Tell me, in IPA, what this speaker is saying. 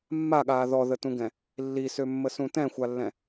mː a ɠ aː ð ɔ ð ə t ũ ɡ ɛ̃ | lː i s ø mː ə s ũ t ɛ̃ xʷ a lː ɛ̃

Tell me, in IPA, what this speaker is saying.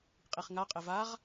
qʼ i χ ŋ a qʼ ɪ v a ʁ

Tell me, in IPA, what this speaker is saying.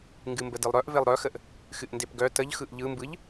ŋ ɡ ɨ m b ə d ɯ lˠ ɾ œ ʔ v e lˠ ɾ œ x ə ʔ | x ɨ ʔ n d e p ɡ œ t ə ʎ x ɯ ʔ ʎ ɯ m b ɯ ʎ

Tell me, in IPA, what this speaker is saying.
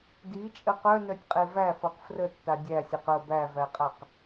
d i t͡ʃʼ ə q œ n œ tʲ qʼ e v æ f ɤ q f r ə tː a dʲ æ sʲ ɤ q ə b æ v æ qʼ a q

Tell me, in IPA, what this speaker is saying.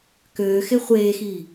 k øː x e χʷ eː x iː

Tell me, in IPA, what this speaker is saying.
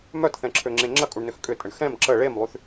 m œ t θ ɛ̃ ǁʰ ø ŋ͡ǁ ẽ ŋ͡ǁ ɐ kʼ u ɳ n ʏ x kʼ ʏ tʼ ə ɳ x ɛ̃ m ǁ ə ɭ e m lˠ y θ

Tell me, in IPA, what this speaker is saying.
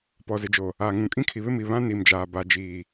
p ɔ˨ z ɪ˨ d͡ʒ o˨ | aː˨ ŋ ũ˨ kʼ ĩ˦ kʰ i˨ β ɪ˦ m i˨ β ã˦ n i˨ m d͡ʒ aː˨ b a˨ d͡ʒ iː˨

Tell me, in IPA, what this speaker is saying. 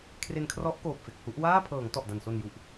kʰ r e˧ n kʰ r ɔ˦˥ ʔ k oː˨˩ p̚ f e˨˩ k̚ h u˦˥ ʔ w aː˥˩ pʰ ɤː˩˦ ŋ t ɔ˨˩ ʔ d a˨˩ n s o˨˩ n j u˨˩ ʔ

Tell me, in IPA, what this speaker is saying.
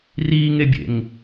r iː ŋ e bʲ ḛ ŋ

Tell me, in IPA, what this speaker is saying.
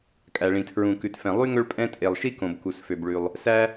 kʼ æ˩ ɭ ĩ˩ tʰ ɹ ũ˩ k ʉ˩ t f ɛ̃˩ lˠ y˥ ŋ ɵ˥ ɭ pʼ ɛ̃˥ tʼ e˩ lˠ ʃ i˥ k õ˩ b k u˩ s f ø˩ b ɭ ʉ˩ lˠ | s æ˥

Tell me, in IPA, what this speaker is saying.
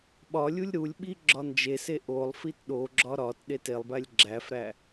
ɓ ɒ lʲ u lʲ ɾ u lʲ ɓ i ɡ͡ǁ ɒ n d͡ʒ e s e ʔ o lˠ f i t ɗ o ɡ͡ǁ ɒ ɾ ɒ t ɗ e t e lˠ b æ lʲ ɡ͡ǁ æ f ɾ æ

